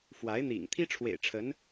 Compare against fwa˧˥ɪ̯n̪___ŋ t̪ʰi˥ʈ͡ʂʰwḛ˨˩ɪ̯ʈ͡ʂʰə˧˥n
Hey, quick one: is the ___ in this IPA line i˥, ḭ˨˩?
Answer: ḭ˨˩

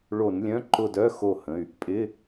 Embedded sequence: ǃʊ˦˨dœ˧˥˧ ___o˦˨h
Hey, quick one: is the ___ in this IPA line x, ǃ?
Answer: x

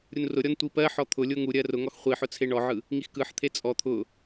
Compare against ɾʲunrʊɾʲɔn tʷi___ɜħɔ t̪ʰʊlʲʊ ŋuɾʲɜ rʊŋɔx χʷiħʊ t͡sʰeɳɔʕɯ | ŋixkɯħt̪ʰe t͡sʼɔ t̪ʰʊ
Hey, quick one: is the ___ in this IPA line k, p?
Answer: p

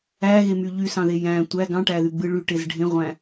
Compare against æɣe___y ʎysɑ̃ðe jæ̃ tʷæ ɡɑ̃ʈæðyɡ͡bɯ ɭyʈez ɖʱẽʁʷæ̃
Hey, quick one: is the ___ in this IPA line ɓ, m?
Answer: m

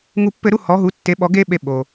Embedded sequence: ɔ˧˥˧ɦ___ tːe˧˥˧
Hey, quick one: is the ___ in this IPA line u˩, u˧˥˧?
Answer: u˧˥˧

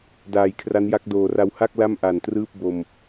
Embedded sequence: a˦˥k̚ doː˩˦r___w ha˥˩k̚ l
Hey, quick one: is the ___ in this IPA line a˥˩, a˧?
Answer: a˧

